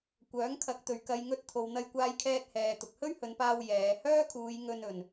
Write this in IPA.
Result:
kʷ œː˨˥ ŋ kʰ ɐ˨˥ k̚ t̪ ɵ˨ ɥ k ɐ˧ j ŋ ɵ˧ t̚ t̪ʰ o˨ w n̪ ɐ˧ j kʷ aː˧ j kʰ ɛː˧ t̚ h ɛː˨ t̪ ʊ˨ k̚ h ɵ˥ ɥ h ɵ˨˧ n p aː˧ w j ɛː˨˧ h œː˥ kʰ uː˨˧ j ŋ ɵ˧ n ɵ˨ n

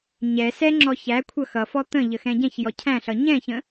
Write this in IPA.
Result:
ɲ ɛ s ɛ ŋ͡ǁ ɔ ç æ kʷʰ ʌ x ʌ f ɔ t̪ ə̃ ʎ ə x ɛ̃ ɟ ɛ̃ ç j ɔ cʰ æ̃ ɬ ʌ ɲ ɛ̃ ç ə̃

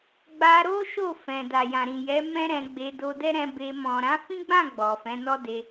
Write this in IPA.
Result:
ɡ͡b a˧ ɾ o˦ ʃ o˦˨ f ɛ̃˨ d a˨ j ã˨ ɾ ĩ˨ j ɛ˨˦ m ɛ̃˦ ɾ ɛ̃˧ ɡ͡b e˧ d o˧ d ɛ˦ ɾ ɛ̃˧ b e˧ m ɔ̃˨ ɾ ã˨˦ f ĩ˦ ɡ͡b ã˦˨ ɡ͡b ɔ˨ f ɛ̃˨˦ n ɔ˦ d e˧

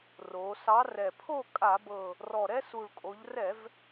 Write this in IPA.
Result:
r o˩˧ s ɑ˨˥ r ɛ˨˩ pʰ o˥˨ kʼ a˧˩˧ b ɤ˨˩ | r ɔ˨˩ ɾ ɛ˦ s u˨˩ ɭ kʼ o˩˧ ʎ r ɛ˧˩˧ v

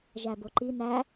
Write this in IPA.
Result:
ʒ æ b o ǃ i n æ

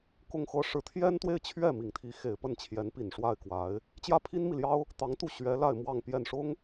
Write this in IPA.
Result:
k ʊ˥˧ ŋ x ɤ˥˩ ʂ ɻ̩˧˥ t̪ʰ j ɛ˥ n t̪ w e˥˧ ɪ̯ t͡ɕʰ ɥ ɛ˥˩ m i˨˩ ŋ t̪ʰ i˧˥ x e˨˩ ɪ̯ p ə˥˩ n t͡ɕʰ j ɛ˧˥ n p i˨˩ n ʂ w a˥˩ ɪ̯ k w a˧˥ ɪ̯ | t͡ɕ j ä˥˩ pʰ i˥ n m i˨ l j ɑ˥ ʊ̯ | t̪ ɑ˧˥ ŋ t̪ u˥˩ ɕ ɥ ɛ˧˥ l a˥˧ ɪ̯ m w ɑ˥˧ ŋ p j ɛ˥˩ n ʂ ʊ˥ ŋ

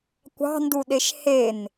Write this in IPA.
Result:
kʷ ɑ̤ n d u ɗ e ʃ h e n

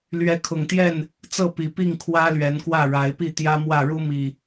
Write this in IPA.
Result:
l ɥ ɛ˨˦ kʰ ʊ˨˩ ŋ t̪ j ɛ˥˨ n | t͡s ɤ˥˨ p i˨˩ p i˥˨ ŋ kʰ w ä˦ l ɥ ɛ˨˦ n k w ä˥˨ ɻ a˨˦ ɪ̯ p i˥˨ t̪ j ä˦ m w ä˥˨ ɻ u˦ m i˨˩

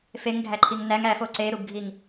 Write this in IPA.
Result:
f e ŋ ɡʱ æ ǃʰ i ŋ n æ ŋ æ f o ǀ e ɾ u b ɡʱ i ŋ

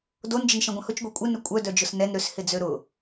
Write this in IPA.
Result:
d o n d͡ʒ ə n ʃ ẽ ɡʷ ɐ̃ h ʊ t͡ʃ ɡʷ e kʷʼ ɪ n ʏ kʷʼ œ d œ d͡ʒ ʊ s n ɛ n ɾ ʏ s h ɪ d͡z ø ɾ ʊ

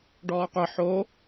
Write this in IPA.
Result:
ɖ ɔː qʷ ə ħ o

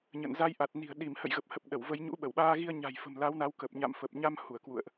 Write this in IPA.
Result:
ɲ ə̰˧˨ n z a˧ j ʔ a˨˩ t̚ n i̤˨˩ ə̯ ɗ i˧˩ m h ə̰˧˨ j ɣ ə˨˩ p̚ h ə˨˩ p̚ ɗ ə˧˩ w v ə˧ j ɲ ṵ˧˥ ɓ ə˧˩ w ɓ aː˧ ɣ i˧ ə̯ ɲ a̤˨˩ j f ə̤˨˩ m l a˨˦ w n a˨˦ w k ə˨˩ p̚ ɲ a̰˧˨ m f ə˨˩ p̚ ɲ a˧ m h u˧˩ ə̯ k w ṵ˧˨ ə̯ ʔ

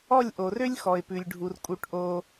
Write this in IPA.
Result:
ɔ˥˧ lʲ ʔ o˧ r ø˥ lʲ x ɔ˧ ɪ̯ p ʉ˧ lʲ ɖʱ u˧ r kʼ u˥˧ ʈ ʔ o˥

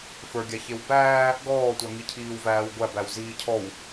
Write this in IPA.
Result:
f ə˞ ɡʲ a ç e w b æː | ɡ ɔː tʷ a ŋ i cʰ iː w v æː w ɡʷ æ b æ w z iː cʰ ɔ w

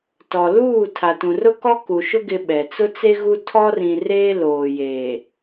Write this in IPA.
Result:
t ɔ˨ l uː˦˨ tʰ a˨ t ũ˨ r ʊ˦ k ɔ˦ k u˨ ʃ ʊ˦ ɡ ɪ˦ ɓ ɛ˨ t͡s ʊ˦ t͡s e˦ ɣ u˦ tʰ ɔ˦ r ĩ˨ r eː˦ l oː˨ j eː˨

